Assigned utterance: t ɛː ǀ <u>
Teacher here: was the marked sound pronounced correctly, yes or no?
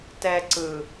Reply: no